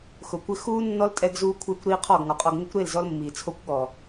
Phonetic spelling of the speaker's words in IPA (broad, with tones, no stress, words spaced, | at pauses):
xʊ˨kʷɪ˦ xuː˦ nːɔ˦ltʼɛ˧ɡzuː˧ kʷʰɪː˧kʷ ɾiː˦qʰɔ˦˨ɡŋɔ˨qʼɔ˧ɡ ŋɪ˦kʷɾe˦˨lzɔ˧l mːiː˨ t͡sʰo˦kʷɠɔː˨